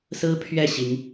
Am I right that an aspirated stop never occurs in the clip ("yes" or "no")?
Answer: no